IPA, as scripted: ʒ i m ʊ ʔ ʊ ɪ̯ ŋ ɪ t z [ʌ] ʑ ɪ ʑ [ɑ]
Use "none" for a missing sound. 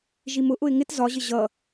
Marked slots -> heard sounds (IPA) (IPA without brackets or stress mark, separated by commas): ɒ, ʌ